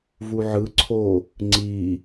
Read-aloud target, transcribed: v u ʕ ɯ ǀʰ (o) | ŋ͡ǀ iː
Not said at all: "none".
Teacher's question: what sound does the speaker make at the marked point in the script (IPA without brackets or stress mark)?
oː